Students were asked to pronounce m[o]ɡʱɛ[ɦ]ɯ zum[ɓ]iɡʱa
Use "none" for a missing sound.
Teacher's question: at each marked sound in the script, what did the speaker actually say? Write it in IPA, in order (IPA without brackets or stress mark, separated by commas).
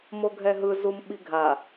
o, ɦ, ɓ